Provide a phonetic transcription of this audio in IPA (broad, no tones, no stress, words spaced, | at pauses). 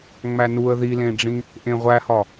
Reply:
ŋ͡mænuə̯ ðilẽɖ͡ʐĩ | ʔẽʁʷæhɒ